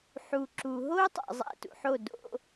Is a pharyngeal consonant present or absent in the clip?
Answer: present